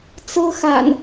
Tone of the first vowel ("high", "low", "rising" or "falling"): high